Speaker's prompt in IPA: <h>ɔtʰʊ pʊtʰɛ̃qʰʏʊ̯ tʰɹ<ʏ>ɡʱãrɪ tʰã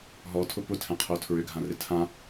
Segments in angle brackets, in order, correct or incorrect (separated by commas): incorrect, correct